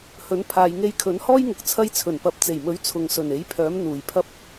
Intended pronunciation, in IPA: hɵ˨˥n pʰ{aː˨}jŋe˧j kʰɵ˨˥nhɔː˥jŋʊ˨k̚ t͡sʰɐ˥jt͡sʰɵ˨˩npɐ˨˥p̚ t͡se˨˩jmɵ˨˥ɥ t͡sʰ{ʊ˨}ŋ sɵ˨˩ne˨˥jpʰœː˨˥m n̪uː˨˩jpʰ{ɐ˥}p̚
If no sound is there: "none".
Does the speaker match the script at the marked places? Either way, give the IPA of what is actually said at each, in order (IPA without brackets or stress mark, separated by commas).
aː˨, ʊ˨, ɐ˥